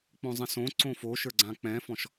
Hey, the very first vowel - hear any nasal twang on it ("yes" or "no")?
yes